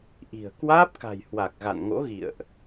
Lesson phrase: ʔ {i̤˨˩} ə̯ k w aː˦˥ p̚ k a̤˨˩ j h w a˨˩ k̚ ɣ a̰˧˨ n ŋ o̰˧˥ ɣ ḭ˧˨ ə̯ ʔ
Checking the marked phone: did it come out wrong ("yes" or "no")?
no